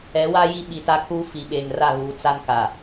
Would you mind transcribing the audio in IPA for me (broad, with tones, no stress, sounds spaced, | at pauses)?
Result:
ɛ˨˦ w a˦ j i˦ ɓ i˨ t a˦ kʰ uː˦ f i˨ ɓ eː˨ ŋ r a˦˨ ɣ uː˨ t͡s a˦ n k a˨